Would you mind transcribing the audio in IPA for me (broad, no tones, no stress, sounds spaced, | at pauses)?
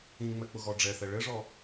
ĩ ŋ͡m ɛ k͡p ʊ ɣ ɔ ɖ͡ʐ ɛ θ ɛ ɭ ɘ ʐ ɔ